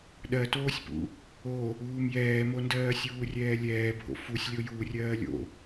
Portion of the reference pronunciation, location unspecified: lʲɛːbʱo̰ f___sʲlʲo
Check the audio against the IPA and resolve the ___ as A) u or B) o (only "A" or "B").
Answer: A